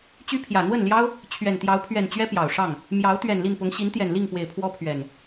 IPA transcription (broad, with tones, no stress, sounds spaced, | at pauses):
t͡ɕ y˦ pʰ j ä˨˩ n̪ w ə˥˨ n l j ɑ˦ ʊ̯ | t͡ɕʰ ɥ ɛ˨˩ n t̪ j ɑ˨˦ ʊ̯ pʰ ɥ ɛ˨˩ n t͡ɕ ɥ ɛ˦ p j ɑ˨˩ ʊ̯ ʂ ɑ˥˨ ŋ | m j ɑ˨˦ ʊ̯ t̪ ɥ ɛ˨˩ n l i˥˨ n p ʊ˨˦ ŋ ɕ i˨˦ n t̪ j ɛ˨˩ n l i˥˨ ŋ p w e˨˩ ɪ̯ pʰ w ɔ˦ pʰ ɥ ɛ˨˩ n